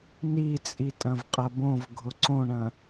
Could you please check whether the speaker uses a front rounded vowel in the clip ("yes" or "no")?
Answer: no